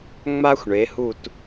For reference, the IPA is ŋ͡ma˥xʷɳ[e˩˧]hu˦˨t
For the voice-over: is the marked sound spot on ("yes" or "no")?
yes